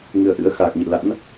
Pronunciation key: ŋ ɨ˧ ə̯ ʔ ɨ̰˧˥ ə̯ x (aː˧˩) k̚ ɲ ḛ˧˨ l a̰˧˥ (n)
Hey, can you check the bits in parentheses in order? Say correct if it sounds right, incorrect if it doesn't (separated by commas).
incorrect, correct